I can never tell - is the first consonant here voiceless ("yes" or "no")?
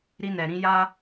no